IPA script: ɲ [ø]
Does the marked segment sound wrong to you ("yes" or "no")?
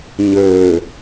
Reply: no